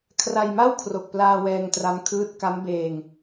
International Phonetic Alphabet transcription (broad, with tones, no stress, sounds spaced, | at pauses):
kʰ r a˧ j m a˥˩ w kʰ r o˨˩ k̚ p l aː˧ w ɛː˧ ŋ t r a˦˥ m kʰ ɯː˦˥ t̚ k a˦˥ m b eː˧ ŋ